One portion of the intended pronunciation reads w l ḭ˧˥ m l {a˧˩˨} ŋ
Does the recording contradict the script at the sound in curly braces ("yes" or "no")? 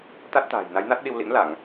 no